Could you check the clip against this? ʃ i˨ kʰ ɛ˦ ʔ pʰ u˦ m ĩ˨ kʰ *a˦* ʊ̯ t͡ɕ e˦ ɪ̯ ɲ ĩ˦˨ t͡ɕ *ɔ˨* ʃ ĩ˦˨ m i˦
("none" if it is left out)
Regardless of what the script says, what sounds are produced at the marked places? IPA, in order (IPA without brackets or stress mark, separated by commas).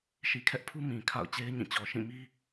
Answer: a̰˦˨, ɔ˨